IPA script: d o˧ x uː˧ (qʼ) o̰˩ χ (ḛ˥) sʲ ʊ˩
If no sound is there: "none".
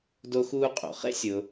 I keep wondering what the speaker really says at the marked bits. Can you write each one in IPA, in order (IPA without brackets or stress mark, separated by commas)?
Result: qʼ, ḛ˥